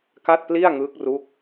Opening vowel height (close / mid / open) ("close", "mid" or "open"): open